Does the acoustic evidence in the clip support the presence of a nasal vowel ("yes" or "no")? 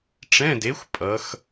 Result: yes